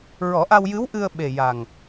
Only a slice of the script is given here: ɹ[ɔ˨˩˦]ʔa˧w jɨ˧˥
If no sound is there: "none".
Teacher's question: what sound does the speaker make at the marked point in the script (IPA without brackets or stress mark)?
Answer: ɔ˨˩˦